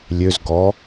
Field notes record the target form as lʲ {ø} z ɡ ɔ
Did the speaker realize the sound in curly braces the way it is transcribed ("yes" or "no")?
yes